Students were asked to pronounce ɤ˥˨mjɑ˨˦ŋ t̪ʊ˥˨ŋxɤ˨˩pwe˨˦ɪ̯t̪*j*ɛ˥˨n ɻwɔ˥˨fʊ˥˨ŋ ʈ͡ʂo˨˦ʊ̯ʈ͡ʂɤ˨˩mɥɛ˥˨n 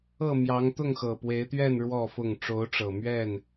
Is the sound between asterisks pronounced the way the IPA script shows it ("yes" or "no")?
no